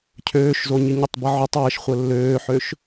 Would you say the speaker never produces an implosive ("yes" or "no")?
yes